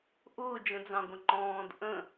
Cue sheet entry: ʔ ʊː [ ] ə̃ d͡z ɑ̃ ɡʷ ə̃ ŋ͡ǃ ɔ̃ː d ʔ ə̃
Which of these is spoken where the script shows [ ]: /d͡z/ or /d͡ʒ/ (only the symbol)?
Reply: d͡ʒ